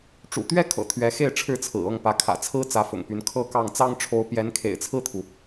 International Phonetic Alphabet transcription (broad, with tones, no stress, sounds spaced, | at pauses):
ʈ͡ʂ ṵ˨˩ t̪ ɥ ɛ˥ kʰ ɤ̰˨˩ t̪ʰ ɥ ɛ˧˥ x e˥˩ ɪ̯ ʈ͡ʂʰ ɻ̩˥ t͡sʰ ɹ̩˨˩ ɤ˥˩ ŋ p ä˧˥ kʰ ä̰˨˩ t͡sʰ ɹ̩˥ t͡s ä˧˥ f ʊ̰˨˩ ŋ p y˧˥ n kʰ ɤ˥˧ k ɑ˥˩ ŋ t͡s ɑ˥ ŋ ʈ͡ʂʰ o˧˥ ʊ̯ p j ɛ˧˥ n kʰ ḛ˨˩ ɪ̯ t͡sʰ ɹ̩˥˩ t̪ʰ u˩